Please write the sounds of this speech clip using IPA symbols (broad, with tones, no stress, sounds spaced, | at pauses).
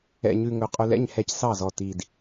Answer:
ɛ̰˨ ɲ ʉ˨ ŋ ɵ˨ qʼ ɵ˨ l ɛ̰˦˨ ɲ h ɛ˨ c s ɑ˦˨ z ɔ˨ t i˨ d